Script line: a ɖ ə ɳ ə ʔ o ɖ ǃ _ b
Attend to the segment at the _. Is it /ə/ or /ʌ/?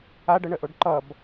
ʌ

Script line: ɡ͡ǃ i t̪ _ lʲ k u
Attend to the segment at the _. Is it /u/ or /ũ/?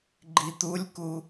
u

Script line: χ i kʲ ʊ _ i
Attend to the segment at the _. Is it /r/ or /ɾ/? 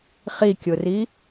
r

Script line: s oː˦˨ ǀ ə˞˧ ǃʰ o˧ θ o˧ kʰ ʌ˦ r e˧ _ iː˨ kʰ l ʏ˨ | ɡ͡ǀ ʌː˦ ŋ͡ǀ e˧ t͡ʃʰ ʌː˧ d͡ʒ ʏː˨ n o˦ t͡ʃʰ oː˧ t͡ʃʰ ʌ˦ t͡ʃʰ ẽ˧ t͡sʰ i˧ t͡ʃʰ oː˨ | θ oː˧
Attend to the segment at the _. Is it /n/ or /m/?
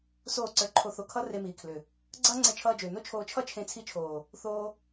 m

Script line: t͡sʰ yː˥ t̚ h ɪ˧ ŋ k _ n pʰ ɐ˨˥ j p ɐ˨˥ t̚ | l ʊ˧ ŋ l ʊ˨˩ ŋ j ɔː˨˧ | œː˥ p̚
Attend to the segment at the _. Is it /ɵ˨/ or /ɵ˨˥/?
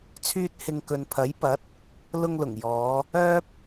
ɵ˨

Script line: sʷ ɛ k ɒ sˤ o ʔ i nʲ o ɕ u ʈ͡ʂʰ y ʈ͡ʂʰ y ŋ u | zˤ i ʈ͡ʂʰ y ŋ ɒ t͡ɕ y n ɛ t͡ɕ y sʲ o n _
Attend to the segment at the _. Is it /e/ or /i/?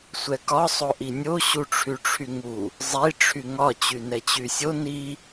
i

